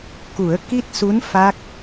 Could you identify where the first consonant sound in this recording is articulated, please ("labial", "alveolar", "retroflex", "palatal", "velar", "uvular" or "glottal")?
velar